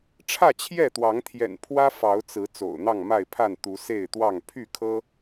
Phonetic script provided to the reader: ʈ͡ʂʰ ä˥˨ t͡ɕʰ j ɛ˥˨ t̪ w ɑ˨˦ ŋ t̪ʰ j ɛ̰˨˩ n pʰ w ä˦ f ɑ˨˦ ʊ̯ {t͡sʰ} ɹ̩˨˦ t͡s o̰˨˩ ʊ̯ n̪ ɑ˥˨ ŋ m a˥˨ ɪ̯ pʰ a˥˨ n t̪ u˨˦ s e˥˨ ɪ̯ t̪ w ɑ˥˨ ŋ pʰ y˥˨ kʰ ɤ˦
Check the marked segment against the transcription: incorrect: t͡s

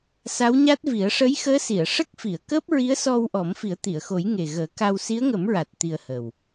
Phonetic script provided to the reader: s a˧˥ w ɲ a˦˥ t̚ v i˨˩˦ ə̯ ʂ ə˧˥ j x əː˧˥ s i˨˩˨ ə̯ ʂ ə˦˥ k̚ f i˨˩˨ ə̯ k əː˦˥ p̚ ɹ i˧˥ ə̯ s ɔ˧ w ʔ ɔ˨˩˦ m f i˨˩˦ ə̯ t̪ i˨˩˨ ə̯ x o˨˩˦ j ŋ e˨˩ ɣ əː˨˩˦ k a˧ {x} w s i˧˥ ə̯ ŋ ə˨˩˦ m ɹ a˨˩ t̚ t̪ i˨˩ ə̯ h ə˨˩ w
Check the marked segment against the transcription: incorrect: none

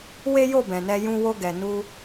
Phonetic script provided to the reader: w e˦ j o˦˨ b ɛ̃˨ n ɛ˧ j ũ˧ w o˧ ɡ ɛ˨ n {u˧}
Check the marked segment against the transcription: correct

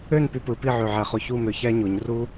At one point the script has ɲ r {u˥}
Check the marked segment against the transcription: correct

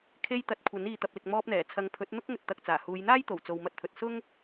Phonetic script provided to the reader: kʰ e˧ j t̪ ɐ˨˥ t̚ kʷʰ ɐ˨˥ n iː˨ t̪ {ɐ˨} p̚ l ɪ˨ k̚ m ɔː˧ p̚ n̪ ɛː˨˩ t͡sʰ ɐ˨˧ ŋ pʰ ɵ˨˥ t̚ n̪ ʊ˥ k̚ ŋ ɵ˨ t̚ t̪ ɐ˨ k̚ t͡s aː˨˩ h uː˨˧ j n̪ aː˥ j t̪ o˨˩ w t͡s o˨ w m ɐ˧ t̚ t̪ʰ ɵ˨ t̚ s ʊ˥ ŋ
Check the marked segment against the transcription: correct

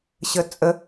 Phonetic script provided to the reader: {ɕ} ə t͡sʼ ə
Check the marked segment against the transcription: correct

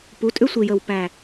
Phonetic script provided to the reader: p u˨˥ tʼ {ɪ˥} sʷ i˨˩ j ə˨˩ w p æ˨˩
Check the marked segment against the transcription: incorrect: ʏ˥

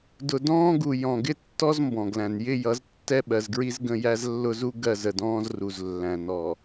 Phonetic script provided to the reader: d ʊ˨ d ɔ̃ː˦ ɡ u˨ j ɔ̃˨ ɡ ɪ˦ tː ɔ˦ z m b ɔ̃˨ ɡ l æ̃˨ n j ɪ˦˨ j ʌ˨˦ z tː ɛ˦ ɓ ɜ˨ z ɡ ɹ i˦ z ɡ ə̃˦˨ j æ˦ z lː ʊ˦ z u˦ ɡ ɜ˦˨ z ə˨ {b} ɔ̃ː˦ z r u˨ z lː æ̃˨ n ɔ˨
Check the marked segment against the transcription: incorrect: d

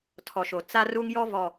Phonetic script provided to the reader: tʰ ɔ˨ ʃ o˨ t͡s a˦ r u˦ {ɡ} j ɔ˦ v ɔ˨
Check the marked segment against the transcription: incorrect: ŋ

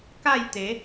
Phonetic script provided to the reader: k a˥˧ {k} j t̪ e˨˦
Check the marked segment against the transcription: incorrect: none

